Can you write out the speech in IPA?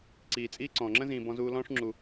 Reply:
ǀiː˨t͡sʼiː˥ ǀɔ̃ː˩ŋ͡ǁə̃˥zĩː˨ bɔ̃˦zuː˦ lɔ̃ː˥ʂŋ͡ǁu˩

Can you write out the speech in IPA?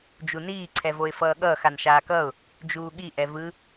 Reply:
d͡ʒuniː ǀʰɛvoɪ̯fʌːɠʌːx anʃaːkʌʊ̯ | d͡ʒuːɠi ʔɛvɯ

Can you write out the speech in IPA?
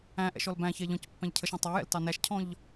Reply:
æ̃ʔɛ̰ ʃɔlbæ̃çɛ ʎɔ̃c pːæ̃ʎcʰəʃæ̃ tˤɑjɛ̰l tɑnæʃcʰɔ̃ʎ

